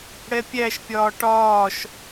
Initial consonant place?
retroflex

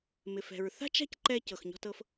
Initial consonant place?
labial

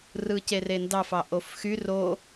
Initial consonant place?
alveolar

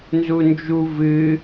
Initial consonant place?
alveolar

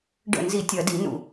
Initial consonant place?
retroflex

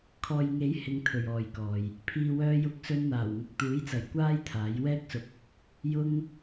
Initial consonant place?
velar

